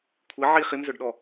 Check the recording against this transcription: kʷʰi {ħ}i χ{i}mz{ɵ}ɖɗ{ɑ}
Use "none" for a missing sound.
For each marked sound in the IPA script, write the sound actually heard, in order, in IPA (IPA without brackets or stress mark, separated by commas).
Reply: ʕ, i, ɵ, ɔ